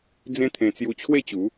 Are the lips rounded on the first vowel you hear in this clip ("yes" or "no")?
no